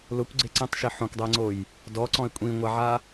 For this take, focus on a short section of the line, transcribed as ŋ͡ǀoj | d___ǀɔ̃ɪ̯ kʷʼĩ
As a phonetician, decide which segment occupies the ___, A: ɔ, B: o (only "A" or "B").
A